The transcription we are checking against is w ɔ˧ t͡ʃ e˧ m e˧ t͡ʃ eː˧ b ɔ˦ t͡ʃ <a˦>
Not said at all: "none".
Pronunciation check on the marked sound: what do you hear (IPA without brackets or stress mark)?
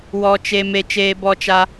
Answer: a˦